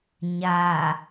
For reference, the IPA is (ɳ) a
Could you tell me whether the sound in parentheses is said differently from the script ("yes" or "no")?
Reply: yes